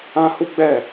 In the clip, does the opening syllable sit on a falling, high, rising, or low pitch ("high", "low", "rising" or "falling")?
high